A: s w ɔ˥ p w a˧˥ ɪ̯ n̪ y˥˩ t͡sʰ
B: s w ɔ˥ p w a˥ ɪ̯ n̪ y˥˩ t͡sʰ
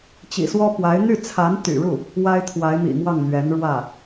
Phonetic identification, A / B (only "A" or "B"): A